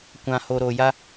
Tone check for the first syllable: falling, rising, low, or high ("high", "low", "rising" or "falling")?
low